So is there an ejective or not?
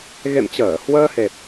no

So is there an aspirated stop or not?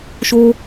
no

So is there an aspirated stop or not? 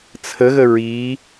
yes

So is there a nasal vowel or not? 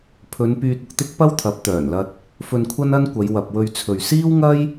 no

